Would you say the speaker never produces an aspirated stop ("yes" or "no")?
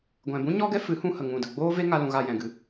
yes